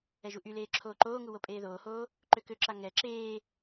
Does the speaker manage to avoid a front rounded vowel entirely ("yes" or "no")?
no